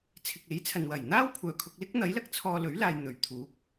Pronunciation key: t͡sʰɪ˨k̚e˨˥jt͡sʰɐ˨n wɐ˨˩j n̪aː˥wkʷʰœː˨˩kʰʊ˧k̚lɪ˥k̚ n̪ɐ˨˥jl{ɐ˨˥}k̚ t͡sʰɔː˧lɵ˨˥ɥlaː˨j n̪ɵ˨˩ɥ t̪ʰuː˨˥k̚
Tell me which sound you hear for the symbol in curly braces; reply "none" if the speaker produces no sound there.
ɐ˨˥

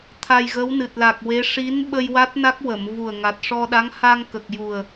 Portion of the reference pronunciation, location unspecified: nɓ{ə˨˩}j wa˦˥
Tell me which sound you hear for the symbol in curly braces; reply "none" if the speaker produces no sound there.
ə˧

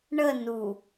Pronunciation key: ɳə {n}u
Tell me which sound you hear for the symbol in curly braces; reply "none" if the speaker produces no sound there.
n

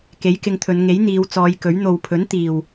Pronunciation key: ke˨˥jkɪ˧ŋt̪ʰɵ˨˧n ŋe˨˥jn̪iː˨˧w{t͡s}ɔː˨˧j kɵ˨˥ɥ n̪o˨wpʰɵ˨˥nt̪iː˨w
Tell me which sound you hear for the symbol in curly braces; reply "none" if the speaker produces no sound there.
t͡s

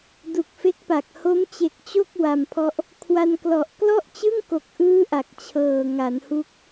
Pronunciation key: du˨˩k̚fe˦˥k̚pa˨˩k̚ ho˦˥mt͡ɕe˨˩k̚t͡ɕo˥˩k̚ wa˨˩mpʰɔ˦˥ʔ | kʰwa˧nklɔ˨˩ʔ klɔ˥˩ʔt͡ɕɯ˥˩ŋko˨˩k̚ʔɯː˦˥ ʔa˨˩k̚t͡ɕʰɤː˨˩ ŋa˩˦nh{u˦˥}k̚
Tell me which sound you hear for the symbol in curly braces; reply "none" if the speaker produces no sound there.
u˦˥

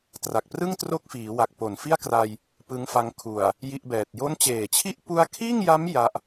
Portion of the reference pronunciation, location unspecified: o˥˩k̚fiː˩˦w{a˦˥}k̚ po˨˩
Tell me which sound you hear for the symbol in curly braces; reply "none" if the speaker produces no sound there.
a˨˩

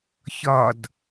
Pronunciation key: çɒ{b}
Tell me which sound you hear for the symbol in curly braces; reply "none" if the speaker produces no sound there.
d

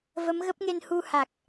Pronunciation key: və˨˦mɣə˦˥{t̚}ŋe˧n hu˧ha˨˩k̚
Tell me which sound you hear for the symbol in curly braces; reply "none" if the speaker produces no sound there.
p̚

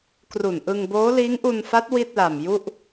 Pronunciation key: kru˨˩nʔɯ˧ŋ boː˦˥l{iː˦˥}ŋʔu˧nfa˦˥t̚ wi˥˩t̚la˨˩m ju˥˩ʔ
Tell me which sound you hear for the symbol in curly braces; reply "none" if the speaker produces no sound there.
iː˦˥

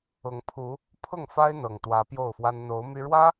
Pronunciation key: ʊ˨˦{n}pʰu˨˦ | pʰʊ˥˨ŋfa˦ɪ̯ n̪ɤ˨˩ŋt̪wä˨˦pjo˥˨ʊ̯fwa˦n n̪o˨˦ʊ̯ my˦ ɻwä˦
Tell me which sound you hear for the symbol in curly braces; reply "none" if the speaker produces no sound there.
ŋ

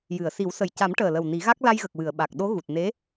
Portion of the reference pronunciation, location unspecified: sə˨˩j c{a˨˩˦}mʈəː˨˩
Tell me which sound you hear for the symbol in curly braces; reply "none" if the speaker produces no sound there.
a˨˩˦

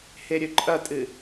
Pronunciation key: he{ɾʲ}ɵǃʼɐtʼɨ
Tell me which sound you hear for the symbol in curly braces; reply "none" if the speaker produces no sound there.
ɾʲ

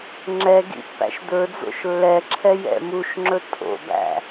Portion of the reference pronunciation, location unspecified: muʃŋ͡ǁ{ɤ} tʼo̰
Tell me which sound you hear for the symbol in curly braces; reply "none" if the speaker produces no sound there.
ɵ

